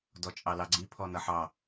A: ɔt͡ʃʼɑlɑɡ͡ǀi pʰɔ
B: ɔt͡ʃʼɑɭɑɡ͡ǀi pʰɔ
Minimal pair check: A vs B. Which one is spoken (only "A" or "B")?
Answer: A